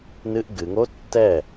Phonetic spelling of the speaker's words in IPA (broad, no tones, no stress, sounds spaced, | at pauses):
n ɨ ʔ ɡ ɨ ŋ o tː ɛ